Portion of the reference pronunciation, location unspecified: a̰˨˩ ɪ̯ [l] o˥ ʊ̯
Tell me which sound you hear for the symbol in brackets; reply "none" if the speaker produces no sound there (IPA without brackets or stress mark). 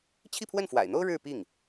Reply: n̪